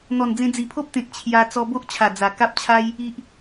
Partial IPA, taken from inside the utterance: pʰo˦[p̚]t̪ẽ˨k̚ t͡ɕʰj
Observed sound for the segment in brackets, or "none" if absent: p̚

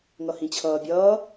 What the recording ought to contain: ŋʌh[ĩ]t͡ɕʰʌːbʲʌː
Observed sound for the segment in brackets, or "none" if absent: ĩ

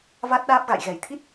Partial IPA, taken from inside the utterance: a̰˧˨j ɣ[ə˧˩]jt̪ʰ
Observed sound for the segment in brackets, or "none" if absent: ɛ˧˩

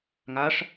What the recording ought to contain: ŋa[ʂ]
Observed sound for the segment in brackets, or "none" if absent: ʂ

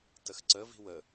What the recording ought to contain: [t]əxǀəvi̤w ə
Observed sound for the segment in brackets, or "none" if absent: t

